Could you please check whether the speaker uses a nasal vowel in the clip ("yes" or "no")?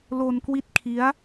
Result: no